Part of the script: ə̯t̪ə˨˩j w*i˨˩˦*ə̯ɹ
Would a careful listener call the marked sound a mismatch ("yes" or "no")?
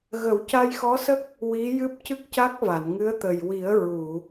no